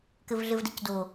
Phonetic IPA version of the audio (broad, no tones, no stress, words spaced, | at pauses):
kɘvɮɘvdɘcdo